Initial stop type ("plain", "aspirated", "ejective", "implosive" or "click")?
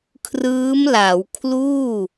aspirated